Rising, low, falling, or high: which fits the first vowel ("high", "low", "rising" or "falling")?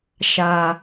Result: high